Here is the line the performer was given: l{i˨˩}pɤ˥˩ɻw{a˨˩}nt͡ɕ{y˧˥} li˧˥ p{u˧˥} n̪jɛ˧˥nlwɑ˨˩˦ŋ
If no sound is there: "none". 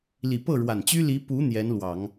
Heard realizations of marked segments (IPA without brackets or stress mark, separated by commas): i˨˩, a˨˩, y˥, u˧˥